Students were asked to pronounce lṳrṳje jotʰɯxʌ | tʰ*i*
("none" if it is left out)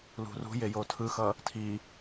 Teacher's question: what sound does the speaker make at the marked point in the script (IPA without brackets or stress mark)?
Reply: i